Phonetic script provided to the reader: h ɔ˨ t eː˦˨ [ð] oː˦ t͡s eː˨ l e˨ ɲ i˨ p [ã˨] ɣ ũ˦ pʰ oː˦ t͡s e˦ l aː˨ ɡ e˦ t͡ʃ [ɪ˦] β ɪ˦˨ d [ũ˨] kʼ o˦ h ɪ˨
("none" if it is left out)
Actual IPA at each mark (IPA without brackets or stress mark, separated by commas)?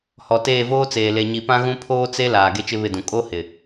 v, ã˦, ɪ˦, ũ˨